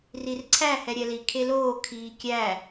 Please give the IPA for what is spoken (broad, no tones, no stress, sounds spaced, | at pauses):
r i r ǀʰ æ h ɛ ɾʲ ɛ l i kʰ e l oː kʰ iː kʲ æ